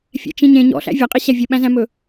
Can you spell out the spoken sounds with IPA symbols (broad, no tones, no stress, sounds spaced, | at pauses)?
fʲ ɛ̰ t͡ʃ ĩ ɲ ẽ ɲ ɔ̰ ɬ æ̰ vʲ ɒ qʼ i ɕ æ vʲ ə ɓ æ̃ z æ̃ m ɵ